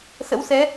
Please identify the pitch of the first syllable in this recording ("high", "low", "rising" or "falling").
rising